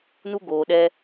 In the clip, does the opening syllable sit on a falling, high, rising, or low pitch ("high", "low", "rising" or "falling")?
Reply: high